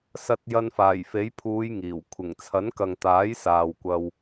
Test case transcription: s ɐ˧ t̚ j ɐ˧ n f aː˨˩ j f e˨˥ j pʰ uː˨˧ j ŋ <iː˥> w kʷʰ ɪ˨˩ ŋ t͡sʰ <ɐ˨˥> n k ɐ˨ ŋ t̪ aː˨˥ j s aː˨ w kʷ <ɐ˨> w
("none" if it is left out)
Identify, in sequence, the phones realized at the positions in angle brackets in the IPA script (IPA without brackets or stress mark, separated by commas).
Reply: iː˨˩, ɐ˨˥, ɐ˧